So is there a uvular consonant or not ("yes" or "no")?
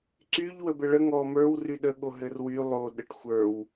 no